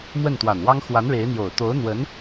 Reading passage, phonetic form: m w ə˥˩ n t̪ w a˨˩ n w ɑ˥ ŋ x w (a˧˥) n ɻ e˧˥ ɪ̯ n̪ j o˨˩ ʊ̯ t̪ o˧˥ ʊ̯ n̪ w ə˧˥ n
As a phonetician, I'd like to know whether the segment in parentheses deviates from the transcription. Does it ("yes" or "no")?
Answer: no